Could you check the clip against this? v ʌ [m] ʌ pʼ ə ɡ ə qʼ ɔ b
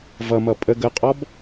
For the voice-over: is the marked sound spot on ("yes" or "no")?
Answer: yes